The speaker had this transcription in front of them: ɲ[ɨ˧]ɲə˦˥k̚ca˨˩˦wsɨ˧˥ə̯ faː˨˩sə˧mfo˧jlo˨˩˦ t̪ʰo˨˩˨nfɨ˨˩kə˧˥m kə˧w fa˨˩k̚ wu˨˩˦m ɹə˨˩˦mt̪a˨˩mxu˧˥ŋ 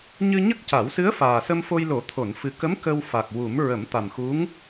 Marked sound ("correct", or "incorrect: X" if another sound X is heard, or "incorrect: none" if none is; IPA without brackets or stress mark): correct